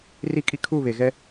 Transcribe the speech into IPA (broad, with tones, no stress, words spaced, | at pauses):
ri˦˨kʼi˦ kʰu˦˨βe˨ɣɛ˦